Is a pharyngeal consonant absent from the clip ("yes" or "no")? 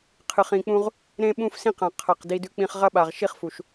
yes